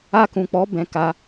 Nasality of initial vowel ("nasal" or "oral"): oral